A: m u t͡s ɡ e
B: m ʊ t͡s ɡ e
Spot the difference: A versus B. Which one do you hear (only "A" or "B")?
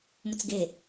B